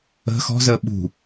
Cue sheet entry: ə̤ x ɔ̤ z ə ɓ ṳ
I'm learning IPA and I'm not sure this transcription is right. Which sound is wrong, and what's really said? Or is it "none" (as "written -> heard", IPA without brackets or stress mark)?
none